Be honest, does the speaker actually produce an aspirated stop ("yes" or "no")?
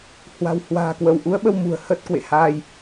no